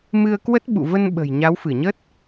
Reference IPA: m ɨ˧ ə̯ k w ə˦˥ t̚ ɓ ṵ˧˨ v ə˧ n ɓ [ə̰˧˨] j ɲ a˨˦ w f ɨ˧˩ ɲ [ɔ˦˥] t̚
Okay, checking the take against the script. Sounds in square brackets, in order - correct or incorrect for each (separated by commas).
incorrect, incorrect